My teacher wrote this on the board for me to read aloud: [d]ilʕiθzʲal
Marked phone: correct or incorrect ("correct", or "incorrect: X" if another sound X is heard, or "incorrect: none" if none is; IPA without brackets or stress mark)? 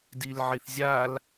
correct